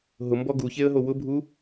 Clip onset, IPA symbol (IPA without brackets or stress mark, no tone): ɦ